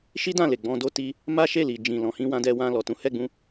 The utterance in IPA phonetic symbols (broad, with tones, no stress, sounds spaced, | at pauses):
ʃ i˦ d ã˦˨ l e˨ ɡ͡b ɔ̃˧ d o˦ t i˦ | m a˦ ʃ e˦˨ l i˨ d͡ʒ ĩ˨ l ɔ̃˨ h ĩ˧ w ã˧ d ɛ˧ w ã˧ l ɔ˨ t ũ˨˦ h ɛ˦˨ ɡ͡b ũ˧